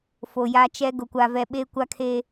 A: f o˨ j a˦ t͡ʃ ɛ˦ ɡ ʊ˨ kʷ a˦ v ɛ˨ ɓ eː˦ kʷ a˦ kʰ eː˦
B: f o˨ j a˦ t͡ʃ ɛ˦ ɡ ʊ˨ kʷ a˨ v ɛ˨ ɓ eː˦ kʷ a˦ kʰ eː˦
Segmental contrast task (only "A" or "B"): B